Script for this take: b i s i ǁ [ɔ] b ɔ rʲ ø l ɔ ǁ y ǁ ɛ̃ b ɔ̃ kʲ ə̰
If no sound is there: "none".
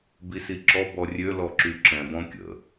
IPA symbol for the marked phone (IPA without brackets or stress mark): ɔ